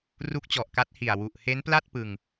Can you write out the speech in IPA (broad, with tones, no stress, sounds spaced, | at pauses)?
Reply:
r u˦˥ k̚ t͡ɕ ɔ˨˩ ʔ k a˦˥ t̚ h i˨˩ a̯ w u˨˩ ʔ h e˦˥ n p l a˥˩ t̚ p ɯ˧ ŋ